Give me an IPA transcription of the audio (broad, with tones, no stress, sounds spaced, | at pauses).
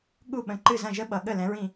ɠ u˥˨ ɓ ə̃˨˦ ǃ ɨ˥˨ z ɐ̃˥˨ ʒ ə˥ ɓ ʌ˨ ɠ ə˥˨ l ɛ̃˨˦ ɹ ĩ˥˨